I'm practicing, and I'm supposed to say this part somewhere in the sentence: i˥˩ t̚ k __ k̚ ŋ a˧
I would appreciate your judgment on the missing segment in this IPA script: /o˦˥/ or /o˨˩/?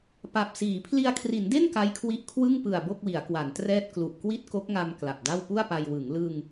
o˦˥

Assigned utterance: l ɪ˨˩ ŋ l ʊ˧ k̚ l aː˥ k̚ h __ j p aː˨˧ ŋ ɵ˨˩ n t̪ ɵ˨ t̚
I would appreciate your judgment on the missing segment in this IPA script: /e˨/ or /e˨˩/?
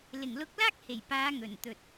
e˨˩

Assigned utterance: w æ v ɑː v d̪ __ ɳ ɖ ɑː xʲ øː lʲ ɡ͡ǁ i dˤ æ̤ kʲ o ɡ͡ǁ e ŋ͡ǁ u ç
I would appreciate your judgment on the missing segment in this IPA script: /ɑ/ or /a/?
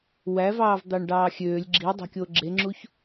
ɑ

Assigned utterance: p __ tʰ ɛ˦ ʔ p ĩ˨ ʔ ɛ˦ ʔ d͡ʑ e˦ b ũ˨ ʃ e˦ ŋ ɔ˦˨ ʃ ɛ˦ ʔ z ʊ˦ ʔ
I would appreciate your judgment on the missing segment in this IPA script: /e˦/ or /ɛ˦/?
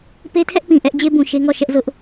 e˦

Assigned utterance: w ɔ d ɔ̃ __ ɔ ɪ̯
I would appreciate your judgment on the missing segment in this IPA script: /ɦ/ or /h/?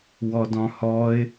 h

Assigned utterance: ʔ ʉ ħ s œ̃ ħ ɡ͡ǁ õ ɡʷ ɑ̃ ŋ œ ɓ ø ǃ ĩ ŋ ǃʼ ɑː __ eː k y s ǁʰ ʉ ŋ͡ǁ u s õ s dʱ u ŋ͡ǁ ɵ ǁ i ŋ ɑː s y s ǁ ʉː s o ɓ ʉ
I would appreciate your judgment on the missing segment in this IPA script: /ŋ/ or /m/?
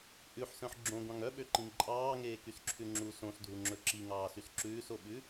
ŋ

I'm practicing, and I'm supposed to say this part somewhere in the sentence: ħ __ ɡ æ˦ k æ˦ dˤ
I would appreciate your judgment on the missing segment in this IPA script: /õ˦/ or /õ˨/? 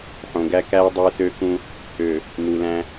õ˨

